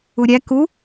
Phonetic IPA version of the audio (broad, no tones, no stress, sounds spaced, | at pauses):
u ɾʲ æ k u